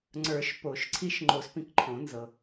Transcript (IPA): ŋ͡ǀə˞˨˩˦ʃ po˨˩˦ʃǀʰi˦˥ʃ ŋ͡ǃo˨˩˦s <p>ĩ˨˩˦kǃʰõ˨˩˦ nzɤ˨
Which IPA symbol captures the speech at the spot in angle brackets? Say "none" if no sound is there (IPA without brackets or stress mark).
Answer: p